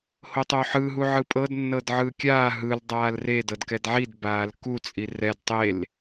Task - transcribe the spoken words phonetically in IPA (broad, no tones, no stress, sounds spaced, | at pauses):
h o tˤ o ħ ɯ ɦ u ʕ ɯ pʼ ɤ d nː ɤ d ʕ ɯː kʲ aː ɦ ɯ l dˤ aː l r e d ɤ d k ɛ d ʕ i d b aː l k u t͡sʼ i r ɛ d tˤ e l